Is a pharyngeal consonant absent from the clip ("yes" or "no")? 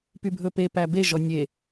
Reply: yes